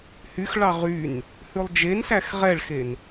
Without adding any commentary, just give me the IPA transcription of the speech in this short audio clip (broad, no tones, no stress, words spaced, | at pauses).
hyxɭɑ ʁyn | hʉlˠd͡ʒensæx ʁɛɭxen